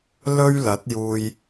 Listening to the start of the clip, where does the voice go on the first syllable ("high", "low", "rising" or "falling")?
high